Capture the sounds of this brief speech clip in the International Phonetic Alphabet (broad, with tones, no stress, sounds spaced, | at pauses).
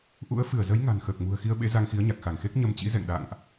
ʔ ṵ˧˥ ə̯ f ɨ˧˩ ə̯ z ə˨˦ j ŋ a̤˨˩ n x əː˨˩ k̚ m ṳ˨˩ ə̯ x i˧ ə̯ ɓ ḛ˧˥ z a˧ ŋ x i˨˦ ə̯ ɲ a˨˩ k̚ x a˧˩ ŋ x e˦˥ k̚ ɲ ə˧ m t͡ɕ ḭ˧˥ z ɛ̰˧˨ ŋ ɗ a̰ː˧˨ ŋ ʔ